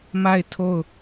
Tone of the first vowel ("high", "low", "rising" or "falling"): falling